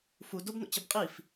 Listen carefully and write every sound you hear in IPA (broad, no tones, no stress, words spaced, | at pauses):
fu dobno̰t͡ɕəb qʼif